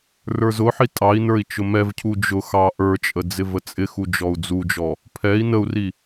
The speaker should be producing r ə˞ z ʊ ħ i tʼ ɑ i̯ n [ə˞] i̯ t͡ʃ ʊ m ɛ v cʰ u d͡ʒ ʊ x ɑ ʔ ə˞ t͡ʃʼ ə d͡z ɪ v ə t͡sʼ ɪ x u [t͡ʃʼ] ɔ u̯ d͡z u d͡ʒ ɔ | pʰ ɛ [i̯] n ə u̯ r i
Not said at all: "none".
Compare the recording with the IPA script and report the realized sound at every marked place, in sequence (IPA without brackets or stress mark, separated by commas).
ə˞, d͡ʒ, i̯